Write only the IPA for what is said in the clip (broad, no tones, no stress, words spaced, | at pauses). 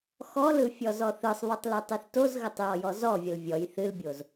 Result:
xɔlɯ fʲɔzɔθɯsˤβɯtˤ lɯtˤɨθtozɣətˤ jɔjɔzɔvʲəl vʲɔj θɨlbʲoz